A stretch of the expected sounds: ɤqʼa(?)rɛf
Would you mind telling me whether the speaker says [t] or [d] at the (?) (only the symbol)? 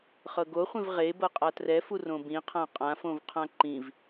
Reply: t